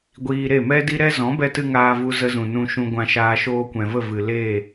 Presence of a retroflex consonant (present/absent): absent